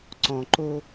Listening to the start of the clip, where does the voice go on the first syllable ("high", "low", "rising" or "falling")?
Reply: low